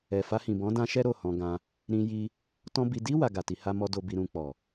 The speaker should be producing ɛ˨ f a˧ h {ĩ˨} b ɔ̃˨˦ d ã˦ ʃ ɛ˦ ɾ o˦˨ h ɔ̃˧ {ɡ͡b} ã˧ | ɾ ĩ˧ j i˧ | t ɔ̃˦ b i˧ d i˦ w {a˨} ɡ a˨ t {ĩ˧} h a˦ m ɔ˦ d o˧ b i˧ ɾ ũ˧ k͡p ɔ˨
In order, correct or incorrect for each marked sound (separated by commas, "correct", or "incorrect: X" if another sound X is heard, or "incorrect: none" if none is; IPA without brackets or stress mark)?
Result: correct, incorrect: ɡ, incorrect: a˧, incorrect: i˧